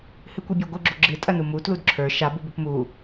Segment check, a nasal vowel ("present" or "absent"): absent